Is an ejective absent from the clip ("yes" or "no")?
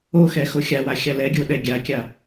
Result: yes